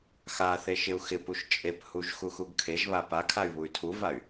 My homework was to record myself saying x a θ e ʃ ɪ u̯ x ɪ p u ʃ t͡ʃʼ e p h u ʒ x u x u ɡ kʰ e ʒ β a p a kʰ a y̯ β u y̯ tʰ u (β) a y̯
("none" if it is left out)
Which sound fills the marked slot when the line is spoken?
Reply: v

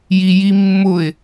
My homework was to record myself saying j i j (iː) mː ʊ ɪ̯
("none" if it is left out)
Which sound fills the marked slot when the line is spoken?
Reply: i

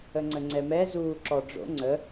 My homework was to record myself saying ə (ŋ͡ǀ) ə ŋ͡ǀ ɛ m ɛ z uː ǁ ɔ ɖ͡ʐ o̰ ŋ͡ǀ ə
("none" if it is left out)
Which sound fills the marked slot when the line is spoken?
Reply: ŋ͡ǀ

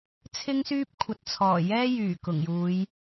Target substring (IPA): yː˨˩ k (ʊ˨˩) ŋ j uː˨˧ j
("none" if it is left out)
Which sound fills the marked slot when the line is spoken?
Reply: ʊ˨˩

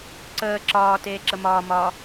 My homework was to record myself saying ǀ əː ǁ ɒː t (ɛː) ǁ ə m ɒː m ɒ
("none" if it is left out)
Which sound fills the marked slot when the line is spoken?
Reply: eː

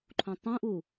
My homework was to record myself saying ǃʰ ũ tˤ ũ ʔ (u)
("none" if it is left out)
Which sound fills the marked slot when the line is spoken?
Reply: u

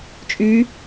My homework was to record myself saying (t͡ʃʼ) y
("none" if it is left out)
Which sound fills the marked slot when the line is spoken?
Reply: t͡ʃʼ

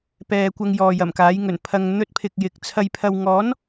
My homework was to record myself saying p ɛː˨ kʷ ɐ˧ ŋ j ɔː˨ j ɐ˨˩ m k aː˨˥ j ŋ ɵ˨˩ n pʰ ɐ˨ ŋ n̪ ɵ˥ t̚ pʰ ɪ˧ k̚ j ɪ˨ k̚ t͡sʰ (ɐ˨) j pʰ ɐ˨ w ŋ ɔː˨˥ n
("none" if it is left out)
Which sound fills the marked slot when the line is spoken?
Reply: ɐ˨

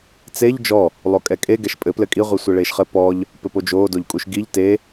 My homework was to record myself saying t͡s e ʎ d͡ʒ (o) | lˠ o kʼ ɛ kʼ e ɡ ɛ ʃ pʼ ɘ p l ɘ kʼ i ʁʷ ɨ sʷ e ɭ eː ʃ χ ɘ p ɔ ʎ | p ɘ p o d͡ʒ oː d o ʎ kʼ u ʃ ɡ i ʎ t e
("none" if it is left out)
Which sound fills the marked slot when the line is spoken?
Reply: ɔ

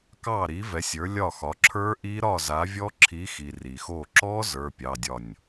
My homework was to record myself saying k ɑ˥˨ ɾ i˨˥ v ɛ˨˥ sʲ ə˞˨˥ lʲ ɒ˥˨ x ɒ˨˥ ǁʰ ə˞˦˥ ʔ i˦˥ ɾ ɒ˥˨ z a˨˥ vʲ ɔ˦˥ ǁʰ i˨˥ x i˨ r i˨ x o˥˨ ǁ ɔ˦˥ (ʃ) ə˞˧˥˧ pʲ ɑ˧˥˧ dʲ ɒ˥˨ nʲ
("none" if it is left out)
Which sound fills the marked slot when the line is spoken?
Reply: z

